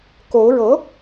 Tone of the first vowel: rising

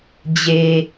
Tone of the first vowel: low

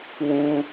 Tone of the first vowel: high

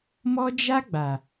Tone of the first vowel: high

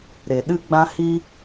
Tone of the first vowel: low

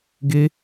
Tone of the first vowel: high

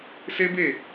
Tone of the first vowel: high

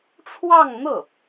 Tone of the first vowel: falling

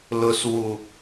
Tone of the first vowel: low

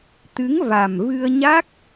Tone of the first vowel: rising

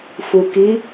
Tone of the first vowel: low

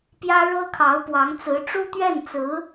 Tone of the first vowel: high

